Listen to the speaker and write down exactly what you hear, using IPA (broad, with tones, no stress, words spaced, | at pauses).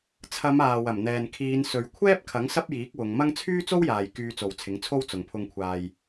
t͡sʰɐ˨˧m aː˨wɐ˨˩mn̪ɛː˨n kʰiː˨˧nsɵ˨˧ɥ kʷʰɛː˥p̚kʰɐ˨˥ŋ sɐ˥p̚jiː˨˥k̚wʊ˨˧ŋ mɐ˥ŋ t͡sʰyː˥t͡so˥wjaː˨j kyː˧t͡so˨wt͡sʰɪ˨˥ŋt͡sʰo˥w t͡sʊ˨ŋpʰʊ˧ŋkʷʰaː˧j